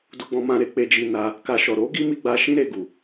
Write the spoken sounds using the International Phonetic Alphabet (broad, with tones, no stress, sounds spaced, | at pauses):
d u˧ ɡ͡b ɔ̃˧ m ã˧ ɾ e˧ k͡p e˧ d͡ʒ i˧ n a˧ | k a˧ ʃ ɔ˨ ɾ o˨˦ ɡ i˦ m i˦ ɡ͡b a˦ ʃ ĩ˦ ɾ e˧ ɡ u˨